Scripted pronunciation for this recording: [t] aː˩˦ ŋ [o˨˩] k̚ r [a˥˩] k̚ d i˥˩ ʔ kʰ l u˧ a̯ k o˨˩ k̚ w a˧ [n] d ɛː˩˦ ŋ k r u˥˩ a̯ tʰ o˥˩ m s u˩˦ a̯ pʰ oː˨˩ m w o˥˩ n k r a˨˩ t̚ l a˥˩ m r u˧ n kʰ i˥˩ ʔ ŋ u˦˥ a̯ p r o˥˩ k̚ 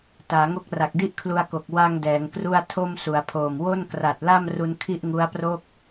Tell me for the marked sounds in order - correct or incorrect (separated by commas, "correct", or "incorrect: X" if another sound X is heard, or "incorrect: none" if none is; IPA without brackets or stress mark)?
correct, incorrect: o˦˥, incorrect: a˨˩, incorrect: ŋ